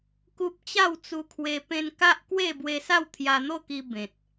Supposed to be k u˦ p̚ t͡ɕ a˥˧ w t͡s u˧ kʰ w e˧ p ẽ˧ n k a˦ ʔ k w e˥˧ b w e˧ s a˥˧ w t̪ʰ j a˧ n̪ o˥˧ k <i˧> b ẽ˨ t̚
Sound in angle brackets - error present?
no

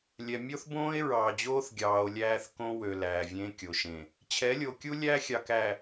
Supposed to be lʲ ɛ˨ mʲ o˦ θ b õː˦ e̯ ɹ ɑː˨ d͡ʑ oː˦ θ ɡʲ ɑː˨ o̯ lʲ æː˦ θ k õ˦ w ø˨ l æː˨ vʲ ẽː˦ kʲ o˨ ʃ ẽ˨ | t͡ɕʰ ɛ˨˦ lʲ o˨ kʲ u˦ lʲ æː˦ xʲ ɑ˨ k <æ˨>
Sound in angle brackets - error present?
no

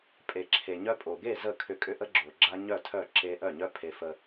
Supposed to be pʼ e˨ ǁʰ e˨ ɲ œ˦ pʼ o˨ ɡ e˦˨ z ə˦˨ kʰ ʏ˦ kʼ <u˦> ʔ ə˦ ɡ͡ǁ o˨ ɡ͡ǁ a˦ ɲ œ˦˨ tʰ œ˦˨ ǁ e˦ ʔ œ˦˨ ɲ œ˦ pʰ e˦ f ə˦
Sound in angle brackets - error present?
yes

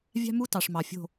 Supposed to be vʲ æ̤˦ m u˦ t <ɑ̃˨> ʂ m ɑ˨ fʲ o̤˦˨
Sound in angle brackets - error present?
yes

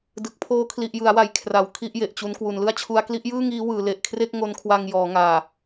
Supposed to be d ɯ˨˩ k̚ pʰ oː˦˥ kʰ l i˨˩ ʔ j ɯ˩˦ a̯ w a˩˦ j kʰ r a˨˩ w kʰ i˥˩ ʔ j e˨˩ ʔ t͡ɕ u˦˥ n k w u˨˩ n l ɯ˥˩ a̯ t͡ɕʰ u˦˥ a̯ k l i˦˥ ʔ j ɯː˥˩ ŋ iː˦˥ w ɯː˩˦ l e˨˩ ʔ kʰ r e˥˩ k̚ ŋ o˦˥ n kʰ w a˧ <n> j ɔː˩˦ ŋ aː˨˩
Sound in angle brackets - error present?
yes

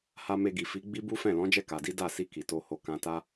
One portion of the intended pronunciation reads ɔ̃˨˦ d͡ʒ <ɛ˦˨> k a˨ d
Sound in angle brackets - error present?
no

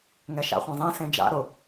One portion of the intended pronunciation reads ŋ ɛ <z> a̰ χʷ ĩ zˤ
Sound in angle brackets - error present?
yes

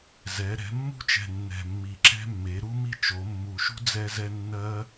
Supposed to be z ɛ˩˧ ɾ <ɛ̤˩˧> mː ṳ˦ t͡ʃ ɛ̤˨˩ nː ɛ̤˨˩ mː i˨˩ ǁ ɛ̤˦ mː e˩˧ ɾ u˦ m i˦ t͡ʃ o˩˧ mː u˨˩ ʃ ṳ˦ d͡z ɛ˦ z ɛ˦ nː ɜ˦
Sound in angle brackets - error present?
no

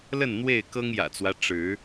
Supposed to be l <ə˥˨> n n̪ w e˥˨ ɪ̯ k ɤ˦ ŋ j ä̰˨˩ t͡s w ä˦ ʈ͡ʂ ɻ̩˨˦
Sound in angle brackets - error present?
no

